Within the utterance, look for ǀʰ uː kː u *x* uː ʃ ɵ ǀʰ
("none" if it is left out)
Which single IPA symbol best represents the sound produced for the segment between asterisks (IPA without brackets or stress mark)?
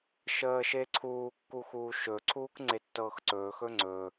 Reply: x